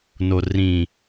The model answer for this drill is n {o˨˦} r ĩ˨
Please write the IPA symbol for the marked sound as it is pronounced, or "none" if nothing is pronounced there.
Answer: o˨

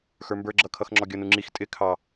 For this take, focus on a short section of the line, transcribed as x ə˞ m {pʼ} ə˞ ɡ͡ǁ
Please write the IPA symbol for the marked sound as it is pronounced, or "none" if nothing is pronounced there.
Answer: b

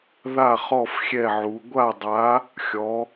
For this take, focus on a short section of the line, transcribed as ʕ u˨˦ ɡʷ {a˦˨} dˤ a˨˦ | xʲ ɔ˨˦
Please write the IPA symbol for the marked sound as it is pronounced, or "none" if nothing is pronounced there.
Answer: a˦˨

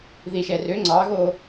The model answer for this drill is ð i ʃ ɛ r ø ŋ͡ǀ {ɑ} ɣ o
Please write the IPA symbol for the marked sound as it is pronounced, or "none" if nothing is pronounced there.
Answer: ɑ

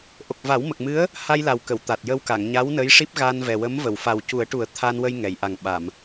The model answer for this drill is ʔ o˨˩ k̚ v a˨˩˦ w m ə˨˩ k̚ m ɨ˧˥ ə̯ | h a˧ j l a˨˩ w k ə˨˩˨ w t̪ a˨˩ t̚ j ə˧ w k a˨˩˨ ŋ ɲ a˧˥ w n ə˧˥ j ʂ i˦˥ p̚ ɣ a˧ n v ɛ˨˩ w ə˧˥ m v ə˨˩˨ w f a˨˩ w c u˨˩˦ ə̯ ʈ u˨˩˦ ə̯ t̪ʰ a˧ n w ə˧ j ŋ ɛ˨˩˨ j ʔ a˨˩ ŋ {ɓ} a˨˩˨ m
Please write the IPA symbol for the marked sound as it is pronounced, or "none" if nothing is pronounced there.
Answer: ɓ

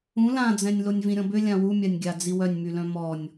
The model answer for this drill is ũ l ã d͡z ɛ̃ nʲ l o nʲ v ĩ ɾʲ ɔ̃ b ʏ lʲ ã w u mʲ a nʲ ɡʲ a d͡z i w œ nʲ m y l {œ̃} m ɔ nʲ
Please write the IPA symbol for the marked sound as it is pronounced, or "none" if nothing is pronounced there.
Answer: œ̃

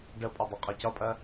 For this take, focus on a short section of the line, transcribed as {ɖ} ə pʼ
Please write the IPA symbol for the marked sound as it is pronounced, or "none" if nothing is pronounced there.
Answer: ɖ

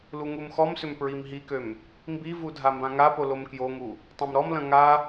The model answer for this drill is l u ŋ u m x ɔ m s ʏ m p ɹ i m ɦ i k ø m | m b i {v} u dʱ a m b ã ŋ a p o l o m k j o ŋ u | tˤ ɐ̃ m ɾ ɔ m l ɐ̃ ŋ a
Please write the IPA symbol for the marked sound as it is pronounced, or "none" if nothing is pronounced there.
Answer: v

